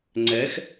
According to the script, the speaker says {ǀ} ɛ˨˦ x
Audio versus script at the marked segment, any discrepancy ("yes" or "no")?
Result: yes